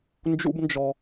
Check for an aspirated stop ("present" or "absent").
absent